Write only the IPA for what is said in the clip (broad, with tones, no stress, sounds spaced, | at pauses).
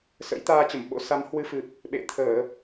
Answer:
s ə̰˧˥ j t̪ aː˧ t͡ɕ ə˧˩ m ɓ o̰˧˥ s a˨˦ m h w ɨ˧ f ɨ˨˩ p̚ | ɓ ḛ˧˨ t̪ʰ əː˧˩˨